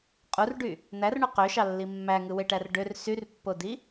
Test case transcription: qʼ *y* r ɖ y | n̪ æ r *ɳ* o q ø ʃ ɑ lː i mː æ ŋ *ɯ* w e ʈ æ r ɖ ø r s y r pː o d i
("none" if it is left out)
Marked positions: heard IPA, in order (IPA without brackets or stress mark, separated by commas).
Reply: u, ɳ, ɯ